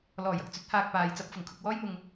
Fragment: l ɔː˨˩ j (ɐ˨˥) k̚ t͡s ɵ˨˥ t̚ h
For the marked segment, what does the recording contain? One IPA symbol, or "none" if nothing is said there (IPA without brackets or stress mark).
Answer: ɐ˨